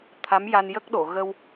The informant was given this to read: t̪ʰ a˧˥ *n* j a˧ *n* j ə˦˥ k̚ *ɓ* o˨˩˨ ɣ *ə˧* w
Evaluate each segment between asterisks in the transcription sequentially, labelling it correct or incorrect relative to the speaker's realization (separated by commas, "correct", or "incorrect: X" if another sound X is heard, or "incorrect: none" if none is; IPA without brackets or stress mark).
incorrect: m, correct, incorrect: ɗ, correct